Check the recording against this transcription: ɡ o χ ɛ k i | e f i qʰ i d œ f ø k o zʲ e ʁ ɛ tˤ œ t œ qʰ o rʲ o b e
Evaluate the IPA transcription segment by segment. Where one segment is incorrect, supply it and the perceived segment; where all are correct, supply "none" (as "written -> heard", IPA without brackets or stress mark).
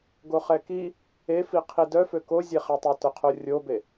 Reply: ʁ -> χ